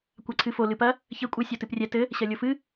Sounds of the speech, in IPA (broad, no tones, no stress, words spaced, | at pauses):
kʷaǀʰɨfo lɨpɐ | çɘ kʷʼɨ sʲotɨprʲɛ tɘ | ɕɐlʲofɨ